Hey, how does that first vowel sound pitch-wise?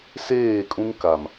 falling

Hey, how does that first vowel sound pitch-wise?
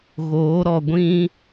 rising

